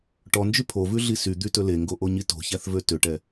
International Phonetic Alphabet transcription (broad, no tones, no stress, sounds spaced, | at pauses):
ʈ ɔ n d͡ʒ y pʰ o v ʉ ɮ i s y d̪ y t ɵ l e ŋ ɡ o ʔ o ɲ i t o̤ ç æ θ v ø t ø ʈ ɛ